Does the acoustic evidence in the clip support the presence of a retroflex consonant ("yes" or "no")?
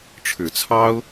yes